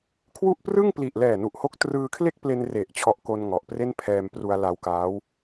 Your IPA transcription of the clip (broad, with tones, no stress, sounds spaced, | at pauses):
kʰ w u˥˩ ʔ p r ɯ˥˩ ŋ p l i˨˩ ʔ l ɛː˨˩ n u˨˩ ʔ h o˦˥ k̚ t r ɯː˧ kʰ l e˥˩ k̚ p l e˧ n r e˨˩ ʔ t͡ɕʰ ɔ˦˥ ʔ k o˧ n ŋ ɔ˨˩ ʔ p r e˥˩ n pʰ ɛː˧ m p r u˧ a̯ l a˧ w k aː˦˥ w